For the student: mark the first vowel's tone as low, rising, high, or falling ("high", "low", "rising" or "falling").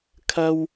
high